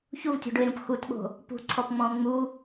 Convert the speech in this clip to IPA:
ç u v tʲ o̤ ɖ ʊ e̯ ɾ ũ p x u t ɓ o̤ | p ṳ ǀʰ ɔ p ŋ͡m ɔ̃ o̯ ŋ͡m u

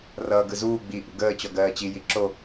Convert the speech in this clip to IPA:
r ʌː ɡ ɯ z uː ɡ͡b i ʔ ṵ ɡ əː t͡ɕ ɔ ɡ ɜː t͡ɕ i j i ǁ o

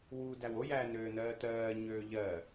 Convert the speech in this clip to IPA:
w u d æ w o j æː n øː n ɜː t ɜː ɲ øː ʎ ɜ

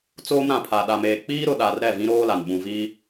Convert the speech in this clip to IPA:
t͡s oː˦ m ɾ ã˨ pʰ a˨ ɗ a˨ m eː˨ k͡p iː˦ ɾ ʊ˨ ɗ a˨ r ɾ ɛ˦˨ v ĩ˦ ɾ oː˦ l a˨ n ɓ ũ˨ v i˦

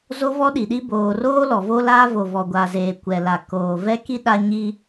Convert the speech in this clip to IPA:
z o˦ v ɔ˦ ɗ i˨ ɗ i˦ b oː˨ r oː˦ l ɔ˨ v o˦ l aː˦ v o˨ v ɔ˨ ɡʷ a˨ z eː˨ kʷ ɛ˨ l a˨ k oː˨ v ɛ˦ k i˦ ɗ a˦ ɲ i˦

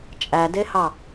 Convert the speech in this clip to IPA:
t͡ʃʼ æ d e h ɑ

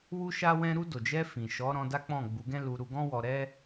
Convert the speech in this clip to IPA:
w u˦ ʃ a˦ w ɛ̃˦ ɾ u˧ d o˨ d͡ʒ ɛ˧ f ĩ˨ ʃ ɔ˨˦ ɾ ɔ̃˧ d a˦ k͡p ɔ̃˦˨ ɡ͡b u˨˦ ɡ ɛ̃˦ l u˧ ɾ u˧ ɡ ɔ̃˦ w ɔ˧ ɾ ɛ˦

